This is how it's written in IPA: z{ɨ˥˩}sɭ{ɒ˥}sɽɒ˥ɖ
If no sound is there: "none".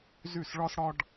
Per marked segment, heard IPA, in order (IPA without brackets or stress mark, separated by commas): y˥˩, ɒ˥